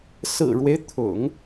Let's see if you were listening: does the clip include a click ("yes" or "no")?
no